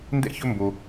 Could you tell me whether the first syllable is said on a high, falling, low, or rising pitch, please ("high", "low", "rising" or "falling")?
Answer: high